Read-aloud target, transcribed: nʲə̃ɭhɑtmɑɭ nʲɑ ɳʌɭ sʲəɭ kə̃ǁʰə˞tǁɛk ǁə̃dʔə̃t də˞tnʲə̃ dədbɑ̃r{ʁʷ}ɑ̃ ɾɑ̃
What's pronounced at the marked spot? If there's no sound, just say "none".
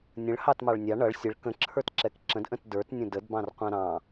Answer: qʷ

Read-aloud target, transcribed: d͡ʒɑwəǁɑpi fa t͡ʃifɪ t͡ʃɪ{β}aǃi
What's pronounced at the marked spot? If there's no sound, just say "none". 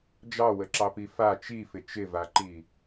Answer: v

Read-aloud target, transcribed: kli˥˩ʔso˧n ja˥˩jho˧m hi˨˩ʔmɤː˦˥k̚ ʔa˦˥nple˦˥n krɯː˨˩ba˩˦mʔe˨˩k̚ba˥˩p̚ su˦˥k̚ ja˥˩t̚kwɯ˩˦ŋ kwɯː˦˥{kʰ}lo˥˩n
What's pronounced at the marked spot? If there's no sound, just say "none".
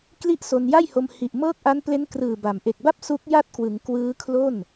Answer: kʰ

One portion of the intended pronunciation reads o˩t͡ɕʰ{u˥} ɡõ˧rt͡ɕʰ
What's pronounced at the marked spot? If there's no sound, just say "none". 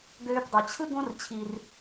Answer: ɯ˥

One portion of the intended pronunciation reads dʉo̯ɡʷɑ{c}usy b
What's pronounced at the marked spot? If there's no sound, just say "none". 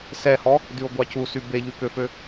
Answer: c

